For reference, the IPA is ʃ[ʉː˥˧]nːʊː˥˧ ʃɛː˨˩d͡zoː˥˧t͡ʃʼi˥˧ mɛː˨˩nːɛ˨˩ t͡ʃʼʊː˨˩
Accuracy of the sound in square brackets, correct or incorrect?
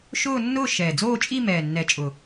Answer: incorrect